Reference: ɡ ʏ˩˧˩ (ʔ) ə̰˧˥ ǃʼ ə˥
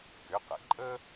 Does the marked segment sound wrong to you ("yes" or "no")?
yes